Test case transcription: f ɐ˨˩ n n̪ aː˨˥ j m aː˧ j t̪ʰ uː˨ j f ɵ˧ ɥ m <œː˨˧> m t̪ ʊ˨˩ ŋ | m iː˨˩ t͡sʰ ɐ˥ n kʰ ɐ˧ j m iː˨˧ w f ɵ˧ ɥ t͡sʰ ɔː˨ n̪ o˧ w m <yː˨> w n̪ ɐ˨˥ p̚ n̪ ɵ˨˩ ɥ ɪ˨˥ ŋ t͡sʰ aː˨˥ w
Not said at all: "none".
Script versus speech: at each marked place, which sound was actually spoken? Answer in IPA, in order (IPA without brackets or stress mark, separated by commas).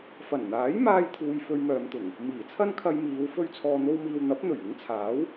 œː˨˧, iː˨